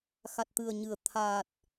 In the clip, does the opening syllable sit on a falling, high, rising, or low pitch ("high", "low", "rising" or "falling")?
low